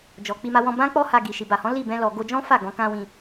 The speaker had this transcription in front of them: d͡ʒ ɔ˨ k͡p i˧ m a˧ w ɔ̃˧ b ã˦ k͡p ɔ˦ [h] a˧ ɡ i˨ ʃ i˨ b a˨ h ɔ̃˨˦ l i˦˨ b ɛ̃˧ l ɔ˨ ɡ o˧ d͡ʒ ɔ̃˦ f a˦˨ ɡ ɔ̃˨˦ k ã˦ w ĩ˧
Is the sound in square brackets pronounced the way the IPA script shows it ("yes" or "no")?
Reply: yes